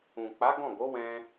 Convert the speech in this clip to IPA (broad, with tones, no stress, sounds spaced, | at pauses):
ũ˨ k͡p a˨˦ ɡ ɔ̃˦˨ ɡ o˨˦ w ɛ̃˧